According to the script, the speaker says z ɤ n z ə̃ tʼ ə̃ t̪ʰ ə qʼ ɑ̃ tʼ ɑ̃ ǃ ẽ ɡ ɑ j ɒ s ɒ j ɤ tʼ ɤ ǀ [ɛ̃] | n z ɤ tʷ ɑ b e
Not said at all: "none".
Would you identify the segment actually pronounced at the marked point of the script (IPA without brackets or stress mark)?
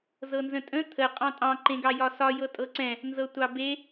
ɛ̃